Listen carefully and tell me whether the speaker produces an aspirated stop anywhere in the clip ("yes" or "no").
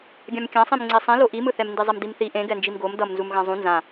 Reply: no